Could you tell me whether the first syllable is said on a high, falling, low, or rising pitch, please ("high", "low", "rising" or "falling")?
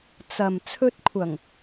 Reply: low